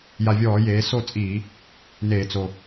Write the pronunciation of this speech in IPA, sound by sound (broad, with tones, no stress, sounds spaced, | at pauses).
j a˨˩ vʲ ɔː˧˩˧ j eː˩˧ s o˥˩ t͡sʼ iː˧˩˧ | n eː˧˩˧ t͡s o˨˩